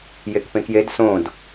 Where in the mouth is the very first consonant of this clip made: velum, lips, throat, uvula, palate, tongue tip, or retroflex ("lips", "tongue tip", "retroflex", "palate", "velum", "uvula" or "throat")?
palate